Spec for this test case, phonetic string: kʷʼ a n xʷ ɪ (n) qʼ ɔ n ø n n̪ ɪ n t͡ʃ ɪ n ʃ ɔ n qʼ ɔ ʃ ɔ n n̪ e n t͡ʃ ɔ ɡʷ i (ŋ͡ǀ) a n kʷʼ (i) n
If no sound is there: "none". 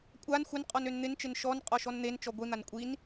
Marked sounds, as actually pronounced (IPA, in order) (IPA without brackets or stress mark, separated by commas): n, n̪, i